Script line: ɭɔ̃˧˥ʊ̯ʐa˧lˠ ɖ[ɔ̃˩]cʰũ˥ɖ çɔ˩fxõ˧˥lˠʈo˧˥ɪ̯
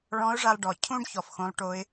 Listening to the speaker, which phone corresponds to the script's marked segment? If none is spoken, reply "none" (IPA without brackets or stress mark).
ɔ˩